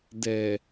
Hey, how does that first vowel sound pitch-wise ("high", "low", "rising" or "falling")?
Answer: low